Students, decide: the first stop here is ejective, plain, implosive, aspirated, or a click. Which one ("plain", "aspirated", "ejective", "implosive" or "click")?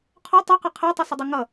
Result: aspirated